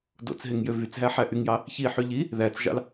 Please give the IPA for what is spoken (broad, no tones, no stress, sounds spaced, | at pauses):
d o̰ t͡s ɦ e ŋ j ø v y t͡s ɦ æ ħ æ ʔ y ŋ j ɑ | ç i ħ y ʎ i | ð æ t͡s ʒ ɑ̰ l